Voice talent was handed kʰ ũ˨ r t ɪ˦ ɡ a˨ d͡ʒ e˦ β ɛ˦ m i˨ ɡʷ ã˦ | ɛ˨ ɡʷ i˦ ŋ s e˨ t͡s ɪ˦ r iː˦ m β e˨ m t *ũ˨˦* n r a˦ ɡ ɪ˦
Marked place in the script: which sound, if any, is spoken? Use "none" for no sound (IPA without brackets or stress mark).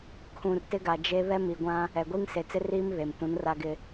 ũ˨˦